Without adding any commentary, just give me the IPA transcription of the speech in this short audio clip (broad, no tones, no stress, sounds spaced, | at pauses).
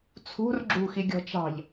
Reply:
t͡sʰ ṳ r ɡ͡ǁ ṳ x i ɡʲ ɔ̤ t͡ʃ ɑ̤ ʎ